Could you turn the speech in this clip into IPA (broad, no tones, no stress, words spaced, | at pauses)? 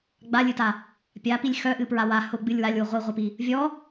ɡ͡balʲɨta | pʲapilʲ xœʔɨpɹa wa hʊɡ͡bɨlʲ walʲwʊ ʁʷiʁʷipi | vʲɔ